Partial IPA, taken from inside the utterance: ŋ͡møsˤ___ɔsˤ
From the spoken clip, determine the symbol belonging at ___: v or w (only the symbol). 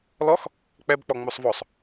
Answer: v